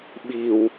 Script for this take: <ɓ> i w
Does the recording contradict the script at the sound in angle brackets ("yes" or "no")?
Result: no